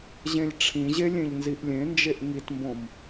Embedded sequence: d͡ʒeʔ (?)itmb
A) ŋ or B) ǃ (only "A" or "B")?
A